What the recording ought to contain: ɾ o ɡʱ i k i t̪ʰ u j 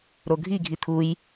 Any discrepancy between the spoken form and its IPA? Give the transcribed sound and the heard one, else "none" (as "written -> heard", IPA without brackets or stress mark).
k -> ɡʱ